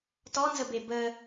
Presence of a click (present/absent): absent